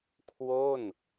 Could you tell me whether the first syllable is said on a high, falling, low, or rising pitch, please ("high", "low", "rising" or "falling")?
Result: falling